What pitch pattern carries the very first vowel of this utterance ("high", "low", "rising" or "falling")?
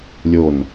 falling